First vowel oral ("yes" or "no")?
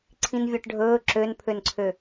no